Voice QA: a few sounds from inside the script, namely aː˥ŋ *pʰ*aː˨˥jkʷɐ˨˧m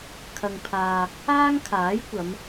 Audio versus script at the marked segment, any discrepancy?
yes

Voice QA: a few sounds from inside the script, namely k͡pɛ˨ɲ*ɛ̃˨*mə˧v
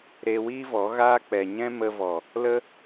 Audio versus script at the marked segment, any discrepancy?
yes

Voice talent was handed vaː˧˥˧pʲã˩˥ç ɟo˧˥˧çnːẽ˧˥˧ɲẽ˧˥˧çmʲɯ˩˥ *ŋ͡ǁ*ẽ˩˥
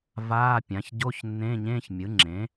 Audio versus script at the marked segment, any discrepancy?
no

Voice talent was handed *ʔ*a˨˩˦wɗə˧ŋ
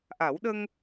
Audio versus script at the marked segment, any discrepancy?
no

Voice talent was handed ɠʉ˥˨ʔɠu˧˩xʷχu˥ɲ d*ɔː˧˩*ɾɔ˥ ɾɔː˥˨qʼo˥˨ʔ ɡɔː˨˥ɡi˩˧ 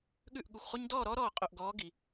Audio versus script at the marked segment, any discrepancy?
yes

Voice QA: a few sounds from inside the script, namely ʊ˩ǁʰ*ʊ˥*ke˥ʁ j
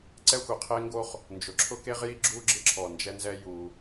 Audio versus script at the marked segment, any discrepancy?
no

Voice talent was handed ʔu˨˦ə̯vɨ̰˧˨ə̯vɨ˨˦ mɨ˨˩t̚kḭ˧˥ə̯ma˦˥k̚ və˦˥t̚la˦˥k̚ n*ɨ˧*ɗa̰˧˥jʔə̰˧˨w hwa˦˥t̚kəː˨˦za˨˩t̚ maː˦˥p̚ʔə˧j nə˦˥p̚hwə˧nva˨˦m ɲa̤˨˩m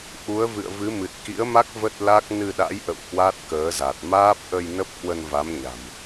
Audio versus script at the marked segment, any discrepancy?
no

